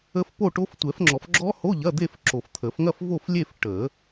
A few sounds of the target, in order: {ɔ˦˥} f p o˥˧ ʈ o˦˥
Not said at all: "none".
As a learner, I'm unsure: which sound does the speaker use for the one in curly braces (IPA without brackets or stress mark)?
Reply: ə˦˥